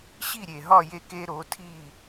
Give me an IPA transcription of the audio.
ɕ i˥˩ ɾʲ e˩ ɦ ɒ˥˩ j e˧ k e˧ ɾ o˩˥ tʰ i˥˩

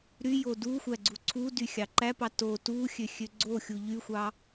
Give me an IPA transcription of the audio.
ɾ y j o d u xʷ æ ɡ͡ǀ u ǀʰ u d y xʲ ɑ ǃ æ p ɑ t o t u xʲ ø xʲ ø ɡ͡ǀ o xʲ u ʎ y xʷ ɑ

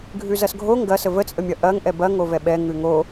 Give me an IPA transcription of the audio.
ɡʱ ʉ z ɐ s ɡʱ o ŋ ɡ ɐ s ə v ə t͡sʼ ə mʲ ɐ ʔ ɐ ŋ ʔ ɛ b ɐ ŋ o v ɛ ɓ ɛ ŋ ʉ ŋ o

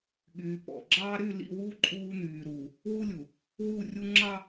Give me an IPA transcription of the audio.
ɠ yː˨ p ɔ̰˨ ɡ͡ǁ ɑː˦ ɾ y˦˨ l ḭ˦˨ w uː˦ ǃʼ uː˦ n̪ yː˨ ɾ uː˨ | w u˦ lʲ u˨ | w u˦˨ rʲ u˦ ŋ͡ǁ ɑ˦

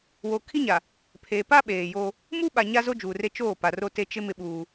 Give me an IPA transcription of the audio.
w o˨ kʰ i˦ ɲ a˨ | pʰ e˨ p a˦ ɓ eː˨ j o˦ | m uː˦ ɓ a˨ ɲ a˦ z o˦ d͡ʒ uː˨ r e˦ t͡ʃ oː˦˨ p a˨ r o˦ t e˦ t͡ʃ ɪ˦ m ɪ˦ ɓ uː˦

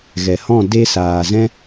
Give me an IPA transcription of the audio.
ɣ ɛ˨ h ɔ̃˦˨ d e˧ s aː˧ z ɛ̃˧

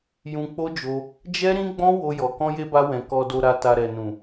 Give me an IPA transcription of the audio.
j ũ˧ k͡p o˦ d͡ʒ o˧ | d͡ʒ ɛ˦ ɾ ĩ˦ ɡ͡b ɔ̃˦ w o˧ j ɔ˨ k ɔ̃˧ j e˧ b a˧ w ɛ̃˨ k ɔ˨ d o˨ ɾ a˨ t a˨ ɾ ɛ˨ n ũ˨

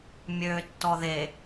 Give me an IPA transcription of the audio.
mʲ øː tː ɔ ð e

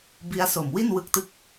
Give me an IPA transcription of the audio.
b i˦˥ a̯ s o˨˩ m w i˥˩ n w ɯ˦˥ k̚ t ɯ˦˥ k̚

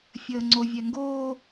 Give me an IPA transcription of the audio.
fʲ əː ŋ͡ǀ o vʲ ɛ ŋ ɡ oː

